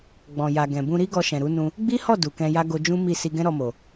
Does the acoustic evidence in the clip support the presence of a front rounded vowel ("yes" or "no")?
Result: no